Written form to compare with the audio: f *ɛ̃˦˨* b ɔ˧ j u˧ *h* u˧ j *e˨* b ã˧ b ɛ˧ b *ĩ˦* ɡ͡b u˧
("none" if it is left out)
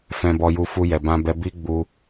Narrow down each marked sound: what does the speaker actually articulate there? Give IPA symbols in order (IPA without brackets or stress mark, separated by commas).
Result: ɛ̃˧, f, ɛ˨, i˦